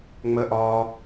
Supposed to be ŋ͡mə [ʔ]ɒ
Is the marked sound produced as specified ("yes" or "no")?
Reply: yes